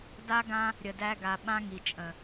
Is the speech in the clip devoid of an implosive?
no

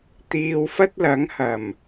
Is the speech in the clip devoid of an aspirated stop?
yes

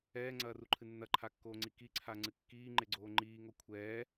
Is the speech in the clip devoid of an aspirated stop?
no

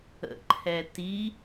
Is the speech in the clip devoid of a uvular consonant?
yes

